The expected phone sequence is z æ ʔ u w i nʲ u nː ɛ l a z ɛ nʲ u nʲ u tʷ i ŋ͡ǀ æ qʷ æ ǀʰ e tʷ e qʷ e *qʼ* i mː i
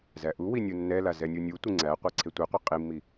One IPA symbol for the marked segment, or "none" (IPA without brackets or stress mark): qʼ